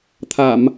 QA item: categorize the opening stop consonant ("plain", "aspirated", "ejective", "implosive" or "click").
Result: aspirated